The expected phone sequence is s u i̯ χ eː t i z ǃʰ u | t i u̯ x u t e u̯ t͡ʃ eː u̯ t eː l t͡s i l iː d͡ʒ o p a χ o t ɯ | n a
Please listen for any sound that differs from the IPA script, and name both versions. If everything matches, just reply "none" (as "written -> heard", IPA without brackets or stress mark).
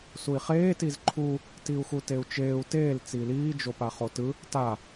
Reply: n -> t